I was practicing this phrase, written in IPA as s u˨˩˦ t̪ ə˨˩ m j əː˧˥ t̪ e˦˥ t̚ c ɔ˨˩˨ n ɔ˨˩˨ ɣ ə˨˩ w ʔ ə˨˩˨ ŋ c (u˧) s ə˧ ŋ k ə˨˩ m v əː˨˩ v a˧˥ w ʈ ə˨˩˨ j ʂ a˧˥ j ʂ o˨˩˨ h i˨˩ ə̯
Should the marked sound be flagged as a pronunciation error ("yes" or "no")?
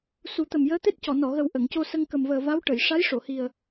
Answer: yes